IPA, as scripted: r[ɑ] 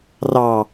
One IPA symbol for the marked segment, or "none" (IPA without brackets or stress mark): ɑ